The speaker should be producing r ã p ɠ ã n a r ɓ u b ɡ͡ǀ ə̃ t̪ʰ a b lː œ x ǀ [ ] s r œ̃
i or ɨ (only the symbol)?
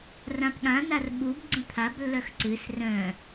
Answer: ɨ